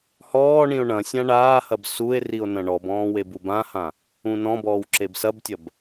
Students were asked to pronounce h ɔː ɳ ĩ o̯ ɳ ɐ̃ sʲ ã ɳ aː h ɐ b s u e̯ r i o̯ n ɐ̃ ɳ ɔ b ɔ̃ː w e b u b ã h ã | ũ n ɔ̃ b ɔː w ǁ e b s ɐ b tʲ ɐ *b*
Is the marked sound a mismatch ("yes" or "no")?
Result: no